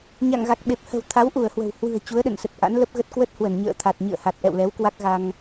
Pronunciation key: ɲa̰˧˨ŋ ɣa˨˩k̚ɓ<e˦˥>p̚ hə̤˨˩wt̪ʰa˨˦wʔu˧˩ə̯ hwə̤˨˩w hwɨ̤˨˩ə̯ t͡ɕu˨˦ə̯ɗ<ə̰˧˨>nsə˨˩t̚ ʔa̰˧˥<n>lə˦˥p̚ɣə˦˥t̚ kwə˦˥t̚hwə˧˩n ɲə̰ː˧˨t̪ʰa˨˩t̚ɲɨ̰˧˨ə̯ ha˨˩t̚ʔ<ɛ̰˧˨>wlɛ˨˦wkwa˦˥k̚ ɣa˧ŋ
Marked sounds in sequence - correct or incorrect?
incorrect, correct, correct, correct

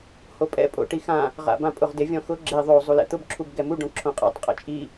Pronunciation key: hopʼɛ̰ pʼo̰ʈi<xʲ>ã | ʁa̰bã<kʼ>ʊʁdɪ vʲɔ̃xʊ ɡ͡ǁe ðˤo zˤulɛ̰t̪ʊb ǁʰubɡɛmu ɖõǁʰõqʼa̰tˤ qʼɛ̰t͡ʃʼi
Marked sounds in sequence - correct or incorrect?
incorrect, incorrect

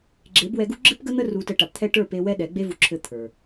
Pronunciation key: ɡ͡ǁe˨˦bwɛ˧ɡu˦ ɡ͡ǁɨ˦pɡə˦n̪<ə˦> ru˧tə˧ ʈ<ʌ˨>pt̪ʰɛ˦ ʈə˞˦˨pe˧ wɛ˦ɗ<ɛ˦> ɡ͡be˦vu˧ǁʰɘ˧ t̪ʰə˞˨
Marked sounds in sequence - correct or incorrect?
correct, incorrect, incorrect

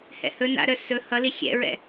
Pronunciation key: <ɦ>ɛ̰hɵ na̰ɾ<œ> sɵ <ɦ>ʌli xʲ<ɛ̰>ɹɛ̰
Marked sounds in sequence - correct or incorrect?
incorrect, correct, incorrect, correct

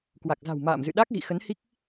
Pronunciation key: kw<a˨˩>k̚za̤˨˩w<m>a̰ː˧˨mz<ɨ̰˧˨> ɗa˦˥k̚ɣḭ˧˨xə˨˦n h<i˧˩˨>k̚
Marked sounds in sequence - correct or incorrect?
correct, correct, correct, incorrect

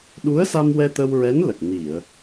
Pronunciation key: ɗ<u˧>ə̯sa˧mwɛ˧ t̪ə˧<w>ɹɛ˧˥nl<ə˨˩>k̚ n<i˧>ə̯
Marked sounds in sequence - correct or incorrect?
incorrect, correct, correct, incorrect

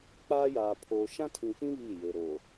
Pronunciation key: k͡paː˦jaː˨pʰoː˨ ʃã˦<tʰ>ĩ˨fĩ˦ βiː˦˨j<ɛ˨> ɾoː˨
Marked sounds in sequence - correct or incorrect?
correct, incorrect

